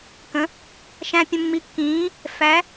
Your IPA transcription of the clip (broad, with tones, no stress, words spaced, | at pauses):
kə̃˨˥ | ʃæ̃˧ pʲə̃˧mːi˧kːĩː˨˥ | fæ˨˥